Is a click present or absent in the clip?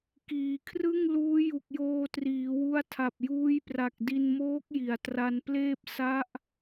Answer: absent